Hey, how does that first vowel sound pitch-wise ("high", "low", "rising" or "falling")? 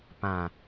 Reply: low